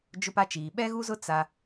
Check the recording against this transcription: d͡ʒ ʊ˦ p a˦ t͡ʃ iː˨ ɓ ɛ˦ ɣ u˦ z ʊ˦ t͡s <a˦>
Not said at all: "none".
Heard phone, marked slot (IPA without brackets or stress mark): a˦